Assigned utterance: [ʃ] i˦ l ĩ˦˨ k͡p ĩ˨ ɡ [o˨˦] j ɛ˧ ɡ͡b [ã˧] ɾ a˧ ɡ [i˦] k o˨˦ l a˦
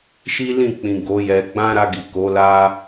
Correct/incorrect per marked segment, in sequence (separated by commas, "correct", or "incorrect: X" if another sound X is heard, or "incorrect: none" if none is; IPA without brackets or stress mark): correct, correct, incorrect: ã˦, incorrect: i˨